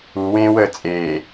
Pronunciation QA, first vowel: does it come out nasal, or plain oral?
oral